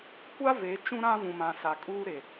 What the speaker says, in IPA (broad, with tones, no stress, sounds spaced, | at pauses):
kʷ a˦ v e˨˦ t͡ʃ ũ˦ ɾ ã˦ v ũ˨ m ã˨ s a˨ kʼ uː˦ ɾ e˨